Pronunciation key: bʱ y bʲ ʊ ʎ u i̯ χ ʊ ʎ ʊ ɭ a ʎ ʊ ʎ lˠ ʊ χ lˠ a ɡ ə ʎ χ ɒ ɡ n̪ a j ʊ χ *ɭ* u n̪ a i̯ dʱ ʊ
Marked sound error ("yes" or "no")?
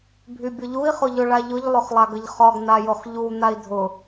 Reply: yes